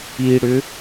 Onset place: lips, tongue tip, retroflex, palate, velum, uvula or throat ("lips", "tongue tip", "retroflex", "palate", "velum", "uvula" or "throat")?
retroflex